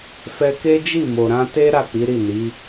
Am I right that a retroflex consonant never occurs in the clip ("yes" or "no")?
yes